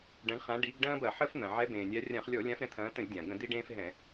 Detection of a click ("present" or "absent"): absent